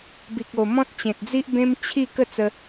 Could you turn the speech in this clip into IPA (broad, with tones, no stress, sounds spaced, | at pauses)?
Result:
b i˨ k̚ o˨˩ m ɔ̃˦ t̚ t͡ɕ ẽ˨ t̚ d͡z i˦ ʔ b ẽ˦ m t͡ɕʰ i˥˧ k ə˥˧ t͡s ə˧